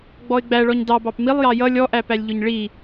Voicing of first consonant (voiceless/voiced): voiced